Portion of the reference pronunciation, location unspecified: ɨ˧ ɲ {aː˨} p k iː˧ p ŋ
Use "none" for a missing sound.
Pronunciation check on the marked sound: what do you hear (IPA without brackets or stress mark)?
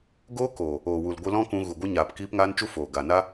aː˨